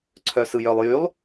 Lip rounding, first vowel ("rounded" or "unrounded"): rounded